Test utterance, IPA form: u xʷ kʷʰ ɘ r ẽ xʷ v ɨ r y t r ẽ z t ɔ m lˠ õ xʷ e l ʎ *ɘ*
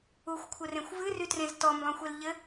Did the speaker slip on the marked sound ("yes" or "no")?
no